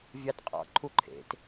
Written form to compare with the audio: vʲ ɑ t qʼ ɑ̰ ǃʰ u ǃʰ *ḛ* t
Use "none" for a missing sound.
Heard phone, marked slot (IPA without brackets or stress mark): ḛ